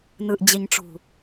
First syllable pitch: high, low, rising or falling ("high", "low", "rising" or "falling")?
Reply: low